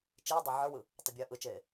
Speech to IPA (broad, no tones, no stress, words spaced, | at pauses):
t͡ʃiːdˤə˞ ʕə˞wɯ | tˤəbʲɜːʔɯt͡ʃeː